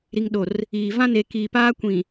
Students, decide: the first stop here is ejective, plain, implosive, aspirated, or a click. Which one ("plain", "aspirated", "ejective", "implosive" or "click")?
implosive